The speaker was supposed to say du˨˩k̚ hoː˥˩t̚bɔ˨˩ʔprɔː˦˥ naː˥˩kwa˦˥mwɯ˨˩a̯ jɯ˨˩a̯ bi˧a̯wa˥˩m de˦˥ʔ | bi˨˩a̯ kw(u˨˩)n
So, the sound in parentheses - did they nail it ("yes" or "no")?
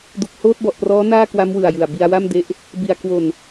no